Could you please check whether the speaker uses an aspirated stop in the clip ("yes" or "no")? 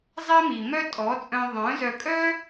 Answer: no